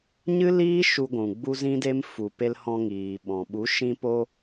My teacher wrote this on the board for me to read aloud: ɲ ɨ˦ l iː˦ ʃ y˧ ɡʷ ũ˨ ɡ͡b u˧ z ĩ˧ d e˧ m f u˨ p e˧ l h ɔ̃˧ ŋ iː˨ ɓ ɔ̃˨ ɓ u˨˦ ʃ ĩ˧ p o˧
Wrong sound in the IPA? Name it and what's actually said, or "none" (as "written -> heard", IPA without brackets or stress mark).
y˧ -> u˧